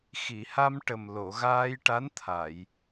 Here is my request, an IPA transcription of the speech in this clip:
x i˨˩˨ h a˧ m ʈ ə˨˩ m l o˨˩˨ ɣ aː˧ j ʈ a˧˥ n t̪ʰ a˨˩˨ j

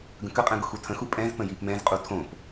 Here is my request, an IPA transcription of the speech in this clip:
ɡ ə̃ k ə qʼ ɛ̃ ɡ ʊ x u tʰ ə̃ x u pʼ ɛ̃ z p ə̃ j i p m ɛ̃ z qʼ u tʰ õ p

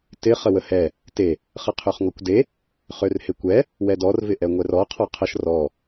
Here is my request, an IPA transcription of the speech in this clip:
t ɪ χ ə w ə h ɛ | t e | χ ə qʰ ø χ ŋ ɔ kʷ d e | χ ø r h e kʷ ɛ | w ɛ d ɔ r v ɪ ʔ ɛ ŋʷ ɛ r ɔ qʰ ɔ qʰ ə ʃ r ɔ

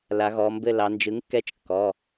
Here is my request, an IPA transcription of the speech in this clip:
l a˩˧ ɣ ɔ˩˧ m b ɘ˦˨ l ɑ˩˧ n d͡ʒ ɯ˩˥ ŋ kː ɛ˦˨ t͡ʃ kː ɔ˩˧˩

